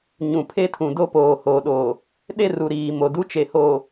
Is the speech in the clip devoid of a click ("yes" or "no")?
yes